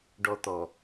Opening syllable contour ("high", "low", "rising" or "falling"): high